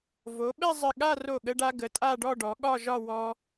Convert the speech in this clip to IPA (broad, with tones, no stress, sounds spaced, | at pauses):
v o˩˧ ɓ ɛ˥˧ zˤ ɘ˧˩ ɠ a˥˧ r o˧˩ ɠ ə˧ ɖ a˧ ɡ ə˩˧ tʼ a˥˧ ɖ ɔ˥˧ ɖ ɔ˩˧ ɠ ɒ˥˧ ʒ ɒ˥˧ w ɔ˧